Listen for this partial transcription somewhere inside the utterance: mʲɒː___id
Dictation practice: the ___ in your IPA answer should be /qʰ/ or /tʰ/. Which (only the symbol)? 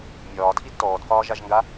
tʰ